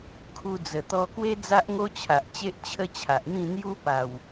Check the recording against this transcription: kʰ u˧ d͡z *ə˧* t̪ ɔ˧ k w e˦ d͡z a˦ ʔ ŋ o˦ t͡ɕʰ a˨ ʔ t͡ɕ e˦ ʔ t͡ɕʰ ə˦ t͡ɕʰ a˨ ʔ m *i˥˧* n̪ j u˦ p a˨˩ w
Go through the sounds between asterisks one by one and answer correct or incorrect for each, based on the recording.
incorrect, incorrect

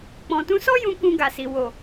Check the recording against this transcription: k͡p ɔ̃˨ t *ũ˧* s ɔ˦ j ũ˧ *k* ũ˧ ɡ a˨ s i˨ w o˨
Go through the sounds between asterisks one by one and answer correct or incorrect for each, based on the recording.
correct, correct

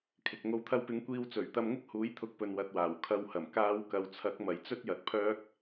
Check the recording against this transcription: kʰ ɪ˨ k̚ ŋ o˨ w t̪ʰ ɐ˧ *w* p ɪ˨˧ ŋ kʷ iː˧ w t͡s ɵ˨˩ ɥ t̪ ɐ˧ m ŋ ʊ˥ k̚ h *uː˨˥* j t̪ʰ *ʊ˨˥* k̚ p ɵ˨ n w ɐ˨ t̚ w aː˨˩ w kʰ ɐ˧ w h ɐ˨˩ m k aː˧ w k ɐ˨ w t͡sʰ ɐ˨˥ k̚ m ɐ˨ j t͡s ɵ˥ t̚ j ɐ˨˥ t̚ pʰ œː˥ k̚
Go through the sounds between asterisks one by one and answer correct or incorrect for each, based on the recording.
correct, correct, correct

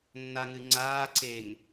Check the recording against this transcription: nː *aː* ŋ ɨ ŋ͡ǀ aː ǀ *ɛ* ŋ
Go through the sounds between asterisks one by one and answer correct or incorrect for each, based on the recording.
incorrect, incorrect

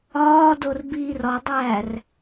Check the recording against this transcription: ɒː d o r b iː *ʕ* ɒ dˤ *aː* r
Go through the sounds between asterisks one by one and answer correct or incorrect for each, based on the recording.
incorrect, incorrect

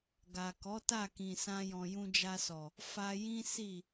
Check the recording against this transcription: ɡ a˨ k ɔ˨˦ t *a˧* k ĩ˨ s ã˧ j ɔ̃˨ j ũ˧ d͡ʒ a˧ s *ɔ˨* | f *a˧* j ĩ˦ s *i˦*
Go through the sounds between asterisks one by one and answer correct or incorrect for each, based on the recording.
incorrect, correct, correct, incorrect

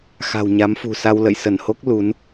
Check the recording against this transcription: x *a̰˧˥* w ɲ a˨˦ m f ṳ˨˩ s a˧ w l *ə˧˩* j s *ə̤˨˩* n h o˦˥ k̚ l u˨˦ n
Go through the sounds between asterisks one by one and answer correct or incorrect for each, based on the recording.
incorrect, incorrect, incorrect

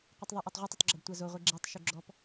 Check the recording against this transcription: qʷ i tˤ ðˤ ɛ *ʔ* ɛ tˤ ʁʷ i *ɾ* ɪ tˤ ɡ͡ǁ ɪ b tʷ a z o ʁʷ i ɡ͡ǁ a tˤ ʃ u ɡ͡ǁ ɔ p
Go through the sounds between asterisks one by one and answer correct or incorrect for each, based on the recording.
correct, incorrect

